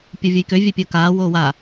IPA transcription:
pʲ o vʲ ə j k ø vʲ œ pʲ əː k aː w oː w a

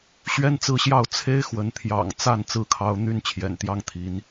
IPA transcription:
ɕ ɥ ɛ˦ n t͡s ɹ̩˥˨ ɕ j ɑ˥˨ ʊ̯ t͡sʰ e˦ ɪ̯ x w ə˨˦ n t̪ʰ j ɑ̰˨˩ ŋ t͡s a˥˨ n t͡s ɹ̩˦ kʰ ɑ˦ ʊ̯ n̪ y˥˨ n t͡ɕʰ j ɛ̰˨˩ n t̪ j ɑ˦ ŋ t̪ʰ i˨˦ n

